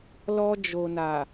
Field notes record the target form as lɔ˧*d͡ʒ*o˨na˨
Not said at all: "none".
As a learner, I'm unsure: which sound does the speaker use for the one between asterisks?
d͡ʒ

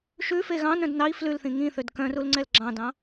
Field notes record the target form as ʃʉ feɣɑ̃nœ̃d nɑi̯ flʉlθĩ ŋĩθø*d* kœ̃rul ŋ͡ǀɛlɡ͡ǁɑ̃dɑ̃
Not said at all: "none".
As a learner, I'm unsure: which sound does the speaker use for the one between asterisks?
d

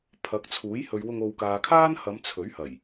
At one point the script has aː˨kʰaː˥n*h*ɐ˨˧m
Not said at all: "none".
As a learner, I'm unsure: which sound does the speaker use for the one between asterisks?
h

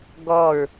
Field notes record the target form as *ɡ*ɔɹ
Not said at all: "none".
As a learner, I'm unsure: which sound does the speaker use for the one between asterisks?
ɡ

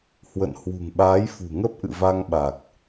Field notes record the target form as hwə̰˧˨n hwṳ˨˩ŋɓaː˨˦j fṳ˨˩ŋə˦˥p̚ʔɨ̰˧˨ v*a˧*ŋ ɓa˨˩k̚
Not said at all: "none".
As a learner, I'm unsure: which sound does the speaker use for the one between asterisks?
a˧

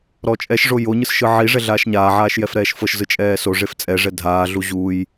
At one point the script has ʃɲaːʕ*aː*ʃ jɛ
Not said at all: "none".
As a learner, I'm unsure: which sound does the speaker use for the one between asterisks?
aː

